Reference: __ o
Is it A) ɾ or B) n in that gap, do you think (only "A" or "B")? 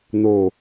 B